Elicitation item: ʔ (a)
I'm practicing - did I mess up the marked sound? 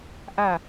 no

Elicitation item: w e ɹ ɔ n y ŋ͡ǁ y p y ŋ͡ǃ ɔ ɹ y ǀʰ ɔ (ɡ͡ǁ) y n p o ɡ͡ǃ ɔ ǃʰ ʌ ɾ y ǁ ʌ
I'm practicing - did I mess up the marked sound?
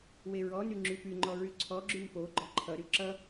no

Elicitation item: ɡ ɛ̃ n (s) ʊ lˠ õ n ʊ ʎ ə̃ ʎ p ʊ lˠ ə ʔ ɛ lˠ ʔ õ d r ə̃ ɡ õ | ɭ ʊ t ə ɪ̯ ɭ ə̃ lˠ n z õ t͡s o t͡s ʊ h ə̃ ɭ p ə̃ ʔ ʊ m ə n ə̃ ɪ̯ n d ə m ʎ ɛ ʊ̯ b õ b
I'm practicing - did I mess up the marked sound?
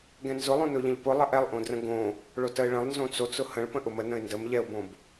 yes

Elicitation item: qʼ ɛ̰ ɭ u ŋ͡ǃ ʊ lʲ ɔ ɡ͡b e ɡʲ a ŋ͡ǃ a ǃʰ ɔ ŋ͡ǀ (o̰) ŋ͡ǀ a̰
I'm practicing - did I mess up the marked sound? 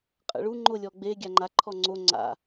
yes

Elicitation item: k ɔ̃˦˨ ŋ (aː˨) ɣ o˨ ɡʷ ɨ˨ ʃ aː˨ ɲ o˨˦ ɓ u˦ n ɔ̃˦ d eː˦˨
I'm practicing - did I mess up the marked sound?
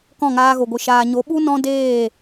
yes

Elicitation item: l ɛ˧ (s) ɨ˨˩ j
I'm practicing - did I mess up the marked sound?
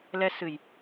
no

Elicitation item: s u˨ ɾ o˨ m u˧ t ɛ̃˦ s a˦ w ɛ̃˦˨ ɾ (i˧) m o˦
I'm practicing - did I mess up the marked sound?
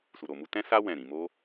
yes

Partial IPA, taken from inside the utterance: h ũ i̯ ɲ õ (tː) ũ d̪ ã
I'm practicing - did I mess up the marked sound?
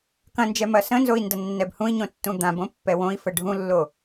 no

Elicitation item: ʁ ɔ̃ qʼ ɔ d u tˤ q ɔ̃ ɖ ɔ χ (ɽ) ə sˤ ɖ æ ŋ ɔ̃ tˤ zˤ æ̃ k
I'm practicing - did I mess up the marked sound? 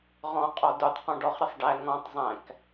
yes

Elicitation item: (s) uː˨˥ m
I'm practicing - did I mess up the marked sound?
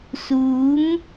no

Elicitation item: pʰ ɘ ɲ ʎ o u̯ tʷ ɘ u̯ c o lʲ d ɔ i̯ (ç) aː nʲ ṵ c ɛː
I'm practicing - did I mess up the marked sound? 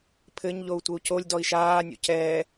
yes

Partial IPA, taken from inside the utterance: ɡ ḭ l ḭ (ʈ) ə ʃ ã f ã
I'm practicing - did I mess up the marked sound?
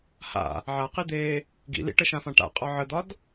no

